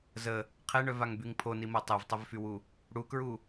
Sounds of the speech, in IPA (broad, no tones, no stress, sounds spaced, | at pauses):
z ə | qʰ e ɳ œ v a ŋ b y ŋ pʰ o n i m o tˤ e v tˤ ə v f y w u | ɽ u k ɹ u